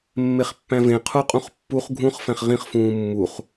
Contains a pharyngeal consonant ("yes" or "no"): no